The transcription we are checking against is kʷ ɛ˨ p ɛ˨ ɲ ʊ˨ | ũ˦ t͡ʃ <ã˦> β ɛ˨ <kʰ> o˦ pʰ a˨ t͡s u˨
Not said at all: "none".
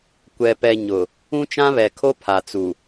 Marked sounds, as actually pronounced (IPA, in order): ã˦, kʰ

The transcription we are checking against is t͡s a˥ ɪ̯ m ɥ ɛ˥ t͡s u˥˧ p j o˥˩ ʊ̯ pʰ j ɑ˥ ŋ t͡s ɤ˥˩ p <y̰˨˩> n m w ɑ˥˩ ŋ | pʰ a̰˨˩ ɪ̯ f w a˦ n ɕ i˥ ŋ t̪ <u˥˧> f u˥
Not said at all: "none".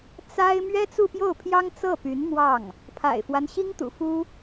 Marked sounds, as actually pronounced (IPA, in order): y˧˥, ṵ˨˩

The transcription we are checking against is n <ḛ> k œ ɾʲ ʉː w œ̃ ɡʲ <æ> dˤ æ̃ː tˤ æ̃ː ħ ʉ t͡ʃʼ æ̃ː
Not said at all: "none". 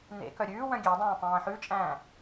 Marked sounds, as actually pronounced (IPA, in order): ḛ, æ

